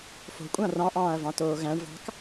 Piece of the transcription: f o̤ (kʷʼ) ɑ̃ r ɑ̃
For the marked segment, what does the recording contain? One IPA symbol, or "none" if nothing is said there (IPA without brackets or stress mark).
kʷʼ